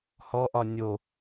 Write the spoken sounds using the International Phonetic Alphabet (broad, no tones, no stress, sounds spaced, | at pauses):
h ɔ ʔ ɒ nʲ o